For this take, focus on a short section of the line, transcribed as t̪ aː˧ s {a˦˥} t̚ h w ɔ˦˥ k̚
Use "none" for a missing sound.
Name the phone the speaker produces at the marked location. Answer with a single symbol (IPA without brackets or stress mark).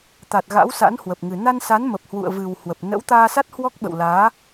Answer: a˦˥